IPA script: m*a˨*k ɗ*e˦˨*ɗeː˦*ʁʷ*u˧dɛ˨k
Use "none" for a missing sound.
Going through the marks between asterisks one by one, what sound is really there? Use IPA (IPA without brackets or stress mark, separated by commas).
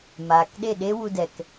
aː˨, e˦˨, w